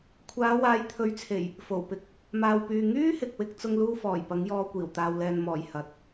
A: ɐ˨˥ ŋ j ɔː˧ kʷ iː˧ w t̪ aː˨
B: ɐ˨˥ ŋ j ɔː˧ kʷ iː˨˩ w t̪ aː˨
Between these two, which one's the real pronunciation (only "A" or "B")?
B